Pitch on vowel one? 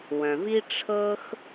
low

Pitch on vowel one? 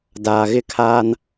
low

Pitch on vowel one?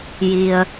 low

